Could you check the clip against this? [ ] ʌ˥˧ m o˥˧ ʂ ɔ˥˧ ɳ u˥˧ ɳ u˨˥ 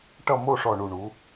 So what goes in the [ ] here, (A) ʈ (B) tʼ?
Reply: A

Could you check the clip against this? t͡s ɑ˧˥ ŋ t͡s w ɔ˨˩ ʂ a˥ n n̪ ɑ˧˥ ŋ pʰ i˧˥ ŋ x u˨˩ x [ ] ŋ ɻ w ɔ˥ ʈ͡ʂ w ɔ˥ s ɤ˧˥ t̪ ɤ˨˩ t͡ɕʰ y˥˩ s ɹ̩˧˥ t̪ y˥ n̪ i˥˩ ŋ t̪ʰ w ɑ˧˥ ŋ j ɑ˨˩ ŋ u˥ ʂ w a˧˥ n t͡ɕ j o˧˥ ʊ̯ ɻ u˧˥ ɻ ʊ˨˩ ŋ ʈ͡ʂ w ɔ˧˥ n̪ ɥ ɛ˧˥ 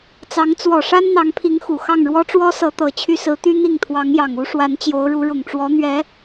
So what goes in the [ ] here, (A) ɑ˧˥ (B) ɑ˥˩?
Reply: B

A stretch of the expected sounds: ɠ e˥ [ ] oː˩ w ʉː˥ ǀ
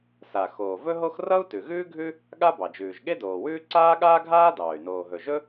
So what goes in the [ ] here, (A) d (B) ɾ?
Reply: A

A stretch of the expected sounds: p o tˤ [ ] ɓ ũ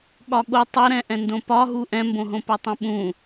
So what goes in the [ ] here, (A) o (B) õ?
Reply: B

